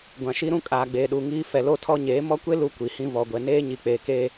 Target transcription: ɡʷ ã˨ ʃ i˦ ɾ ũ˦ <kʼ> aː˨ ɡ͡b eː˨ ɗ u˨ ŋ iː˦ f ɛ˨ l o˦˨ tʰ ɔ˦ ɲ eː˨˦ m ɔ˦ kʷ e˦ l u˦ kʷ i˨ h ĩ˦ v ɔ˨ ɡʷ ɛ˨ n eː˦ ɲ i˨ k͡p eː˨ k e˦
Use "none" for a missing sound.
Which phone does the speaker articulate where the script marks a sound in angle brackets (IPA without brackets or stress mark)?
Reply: kʼ